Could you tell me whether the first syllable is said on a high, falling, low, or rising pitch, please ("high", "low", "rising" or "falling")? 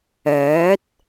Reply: rising